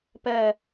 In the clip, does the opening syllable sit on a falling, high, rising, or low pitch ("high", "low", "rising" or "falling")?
falling